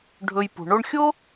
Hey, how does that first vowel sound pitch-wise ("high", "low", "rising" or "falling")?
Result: low